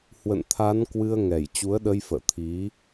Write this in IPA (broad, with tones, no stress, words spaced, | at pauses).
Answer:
hwə̰˧˨nt̪ʰa˨˦n kwɨ˧ə̯ŋɛ˧˩j t͡ɕu˨˦ə̯ɗə˧jfə̰ː˧˨ t̪ʰi˨˦